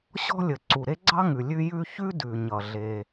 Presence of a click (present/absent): present